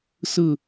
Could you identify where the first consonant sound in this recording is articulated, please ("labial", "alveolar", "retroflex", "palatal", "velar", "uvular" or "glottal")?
alveolar